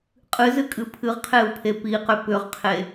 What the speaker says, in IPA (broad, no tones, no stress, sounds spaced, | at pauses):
qʼ ɨ z ɨ kʼ ɨ pʰ ɨ ʁ qʰ e u̯ pʰ e p i q ʏ p ʏ ʁ qʰ e